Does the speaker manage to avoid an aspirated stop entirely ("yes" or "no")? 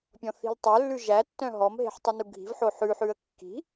yes